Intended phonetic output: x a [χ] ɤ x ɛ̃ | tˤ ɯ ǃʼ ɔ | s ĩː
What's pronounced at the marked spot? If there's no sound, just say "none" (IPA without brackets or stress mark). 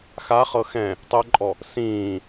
χ